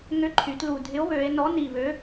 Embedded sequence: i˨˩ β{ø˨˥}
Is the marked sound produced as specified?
yes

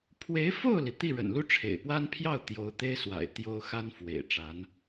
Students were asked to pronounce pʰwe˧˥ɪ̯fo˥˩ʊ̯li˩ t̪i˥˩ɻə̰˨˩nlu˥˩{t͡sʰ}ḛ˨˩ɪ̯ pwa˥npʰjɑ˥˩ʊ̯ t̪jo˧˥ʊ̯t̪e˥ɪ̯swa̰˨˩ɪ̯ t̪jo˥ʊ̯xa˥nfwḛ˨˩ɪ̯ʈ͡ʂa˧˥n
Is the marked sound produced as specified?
no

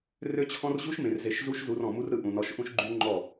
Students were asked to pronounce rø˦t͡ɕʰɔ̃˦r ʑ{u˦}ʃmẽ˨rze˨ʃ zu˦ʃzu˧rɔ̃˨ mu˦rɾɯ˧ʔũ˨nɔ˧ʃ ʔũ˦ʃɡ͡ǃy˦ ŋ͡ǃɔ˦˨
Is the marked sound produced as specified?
yes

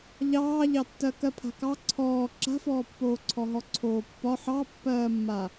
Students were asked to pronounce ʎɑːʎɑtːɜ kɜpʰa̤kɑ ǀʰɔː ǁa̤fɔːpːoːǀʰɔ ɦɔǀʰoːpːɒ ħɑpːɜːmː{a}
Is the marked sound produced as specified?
yes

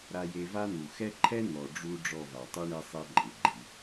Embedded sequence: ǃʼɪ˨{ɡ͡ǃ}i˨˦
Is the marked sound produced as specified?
yes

